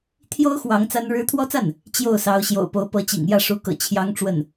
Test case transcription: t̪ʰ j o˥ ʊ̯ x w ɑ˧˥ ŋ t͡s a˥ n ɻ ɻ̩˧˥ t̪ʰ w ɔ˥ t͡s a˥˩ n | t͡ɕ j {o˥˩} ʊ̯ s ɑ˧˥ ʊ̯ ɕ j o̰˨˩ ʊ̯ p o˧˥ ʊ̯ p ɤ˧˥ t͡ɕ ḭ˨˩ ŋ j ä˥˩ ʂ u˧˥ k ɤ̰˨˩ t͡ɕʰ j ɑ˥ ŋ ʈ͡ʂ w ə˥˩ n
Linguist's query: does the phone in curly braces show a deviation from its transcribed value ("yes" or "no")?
no